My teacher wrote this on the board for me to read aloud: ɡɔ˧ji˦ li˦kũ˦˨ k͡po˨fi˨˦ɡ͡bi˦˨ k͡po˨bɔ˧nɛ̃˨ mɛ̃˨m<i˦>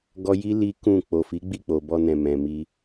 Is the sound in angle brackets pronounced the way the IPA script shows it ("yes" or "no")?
no